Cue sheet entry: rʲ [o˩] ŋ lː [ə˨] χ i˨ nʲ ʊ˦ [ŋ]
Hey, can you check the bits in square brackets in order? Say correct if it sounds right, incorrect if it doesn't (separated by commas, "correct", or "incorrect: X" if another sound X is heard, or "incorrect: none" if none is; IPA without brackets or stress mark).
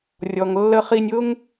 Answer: incorrect: ɔ˩, correct, correct